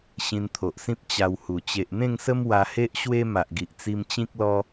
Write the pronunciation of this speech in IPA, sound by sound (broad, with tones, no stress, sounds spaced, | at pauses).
ɕ ĩ˧ n t̪ʰ o˨ ʔ s ĩ˦ p̚ t͡ɕ a˧ w h u˨˩ t͡ɕ e˨ ʔ n̪ ẽ˥˧ ŋ s ə˦ m w a˧ h e˦ ʔ ɕ w e˦ m a˨ ʔ ɡ i˨ ʔ t͡s i˧ m t͡ɕ ĩ˦ k̚ l ɔ˦